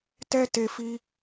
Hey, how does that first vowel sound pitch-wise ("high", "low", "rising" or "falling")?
high